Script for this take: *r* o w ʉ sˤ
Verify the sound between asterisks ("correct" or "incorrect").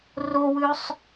correct